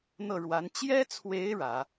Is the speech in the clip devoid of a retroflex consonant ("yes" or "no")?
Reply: no